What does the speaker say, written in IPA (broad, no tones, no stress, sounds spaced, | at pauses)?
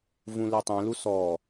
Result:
v ũ l e tˤ ɛ̃ l u s ɔ